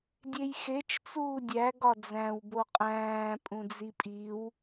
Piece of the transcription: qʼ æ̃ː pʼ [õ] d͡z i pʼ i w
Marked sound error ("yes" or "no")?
yes